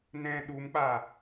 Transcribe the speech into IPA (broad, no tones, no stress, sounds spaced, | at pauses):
n ɛ̃ ɗ u m k͡p a